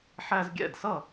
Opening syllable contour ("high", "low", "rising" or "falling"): high